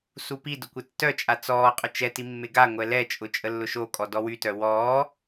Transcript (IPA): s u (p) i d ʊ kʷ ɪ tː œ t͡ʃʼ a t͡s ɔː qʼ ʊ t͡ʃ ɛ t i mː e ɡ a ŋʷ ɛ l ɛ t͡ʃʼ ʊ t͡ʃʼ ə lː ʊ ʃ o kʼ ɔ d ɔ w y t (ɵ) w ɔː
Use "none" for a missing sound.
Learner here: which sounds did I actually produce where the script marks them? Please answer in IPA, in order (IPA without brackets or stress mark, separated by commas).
p, œ